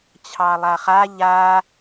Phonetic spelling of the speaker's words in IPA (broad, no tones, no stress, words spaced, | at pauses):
t͡ɕʰɑlˠaχa ʎa